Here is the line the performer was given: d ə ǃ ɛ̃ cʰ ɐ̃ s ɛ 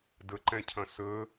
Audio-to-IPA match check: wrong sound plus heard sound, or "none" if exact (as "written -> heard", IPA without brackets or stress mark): ɛ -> ə